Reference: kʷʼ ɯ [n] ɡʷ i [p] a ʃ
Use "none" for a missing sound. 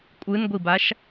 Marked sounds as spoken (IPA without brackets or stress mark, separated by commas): n, b